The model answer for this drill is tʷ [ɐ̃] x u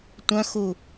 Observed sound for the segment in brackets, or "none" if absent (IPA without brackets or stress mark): ɐ̃